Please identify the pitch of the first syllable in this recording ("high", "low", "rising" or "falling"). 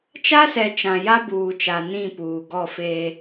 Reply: high